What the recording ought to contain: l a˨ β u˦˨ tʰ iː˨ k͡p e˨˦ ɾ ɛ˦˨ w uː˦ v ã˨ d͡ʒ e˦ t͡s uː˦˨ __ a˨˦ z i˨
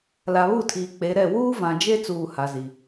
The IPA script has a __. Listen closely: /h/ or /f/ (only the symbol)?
h